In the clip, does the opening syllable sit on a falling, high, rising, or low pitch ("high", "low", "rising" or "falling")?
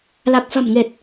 low